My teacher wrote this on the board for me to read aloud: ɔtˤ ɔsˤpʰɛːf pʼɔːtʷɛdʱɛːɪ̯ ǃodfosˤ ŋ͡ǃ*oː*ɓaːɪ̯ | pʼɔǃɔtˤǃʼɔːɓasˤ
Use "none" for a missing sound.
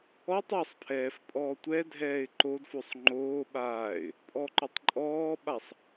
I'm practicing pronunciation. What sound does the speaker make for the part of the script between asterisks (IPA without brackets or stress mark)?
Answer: oː